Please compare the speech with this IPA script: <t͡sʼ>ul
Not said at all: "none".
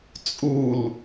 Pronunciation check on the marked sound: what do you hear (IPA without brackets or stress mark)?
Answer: t͡sʼ